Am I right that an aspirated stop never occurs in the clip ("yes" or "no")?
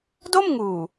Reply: yes